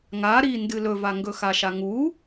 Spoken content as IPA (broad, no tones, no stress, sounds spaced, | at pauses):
ŋ a ɾ i n d ɨ l ɵ v a ŋ ɡ ɵ x a ʃ a ŋ u